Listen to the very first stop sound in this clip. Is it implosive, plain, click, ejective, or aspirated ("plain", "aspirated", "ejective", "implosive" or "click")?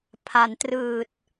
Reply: aspirated